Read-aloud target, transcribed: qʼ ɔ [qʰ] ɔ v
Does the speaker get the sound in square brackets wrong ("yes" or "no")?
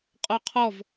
no